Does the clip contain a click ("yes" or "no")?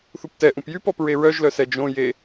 no